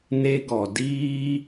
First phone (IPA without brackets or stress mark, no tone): n